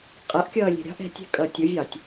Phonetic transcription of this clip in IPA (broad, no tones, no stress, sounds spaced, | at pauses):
qʼ ʌ ʔ kʲ ʌː lʲ ɛ̤ ɾʲ ɑ̤ ʔ ɛ̤ tʲ ɛ̤ kʼ ʌ tʲ ʊ vʲ ɑ tʲ